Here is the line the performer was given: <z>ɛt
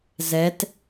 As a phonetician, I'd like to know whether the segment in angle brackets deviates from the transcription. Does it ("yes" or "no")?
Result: no